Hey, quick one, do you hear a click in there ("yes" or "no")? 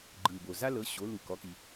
yes